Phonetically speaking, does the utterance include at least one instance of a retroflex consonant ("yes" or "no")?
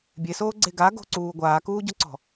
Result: no